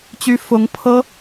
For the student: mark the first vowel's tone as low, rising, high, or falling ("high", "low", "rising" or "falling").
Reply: high